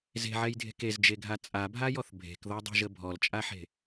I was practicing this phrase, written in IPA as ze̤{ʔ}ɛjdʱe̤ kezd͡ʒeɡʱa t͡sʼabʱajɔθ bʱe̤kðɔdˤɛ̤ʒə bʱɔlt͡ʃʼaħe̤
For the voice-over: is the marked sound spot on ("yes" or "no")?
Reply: no